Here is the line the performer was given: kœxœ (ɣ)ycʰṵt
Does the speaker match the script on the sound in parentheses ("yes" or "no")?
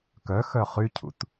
no